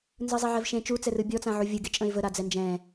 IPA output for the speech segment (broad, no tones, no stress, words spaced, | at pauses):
nzɯzˤeʕɛvʃẽ t͡ʃut͡sɛrɯ bʲɔt͡sã ʕuvʲɯ ɡet͡ʃʼə̃ɪ̯vəɾa d͡zɛnd͡ʒɛ̃